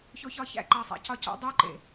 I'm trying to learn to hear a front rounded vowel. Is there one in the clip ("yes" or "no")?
no